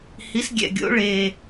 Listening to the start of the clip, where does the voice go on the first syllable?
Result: rising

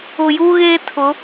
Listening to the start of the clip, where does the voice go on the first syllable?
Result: low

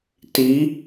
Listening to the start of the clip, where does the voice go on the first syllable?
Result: rising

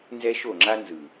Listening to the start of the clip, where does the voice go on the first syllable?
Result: high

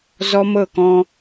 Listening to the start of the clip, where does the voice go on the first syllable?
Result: high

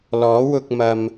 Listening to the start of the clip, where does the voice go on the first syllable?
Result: rising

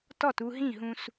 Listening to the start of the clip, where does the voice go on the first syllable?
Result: falling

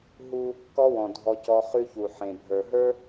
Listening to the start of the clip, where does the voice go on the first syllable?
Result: high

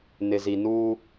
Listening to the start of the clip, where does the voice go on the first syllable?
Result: low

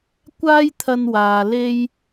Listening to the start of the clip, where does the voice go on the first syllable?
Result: high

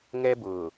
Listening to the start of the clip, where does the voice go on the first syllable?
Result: high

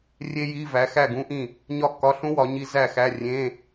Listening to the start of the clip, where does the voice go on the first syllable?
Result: high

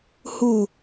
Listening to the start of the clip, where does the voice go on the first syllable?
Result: low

